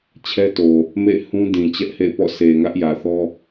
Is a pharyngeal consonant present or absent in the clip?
absent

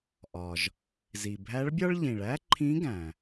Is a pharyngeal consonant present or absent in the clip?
absent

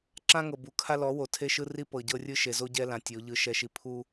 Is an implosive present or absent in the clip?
absent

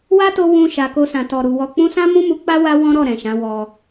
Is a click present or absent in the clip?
absent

